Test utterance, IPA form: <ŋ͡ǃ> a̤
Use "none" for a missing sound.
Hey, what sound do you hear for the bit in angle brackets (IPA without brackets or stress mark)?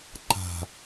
ǃ